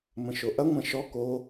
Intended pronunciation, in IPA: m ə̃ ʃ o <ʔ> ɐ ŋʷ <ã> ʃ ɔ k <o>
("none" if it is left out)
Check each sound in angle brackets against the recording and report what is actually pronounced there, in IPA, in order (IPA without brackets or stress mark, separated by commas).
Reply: ʔ, ɐ̃, o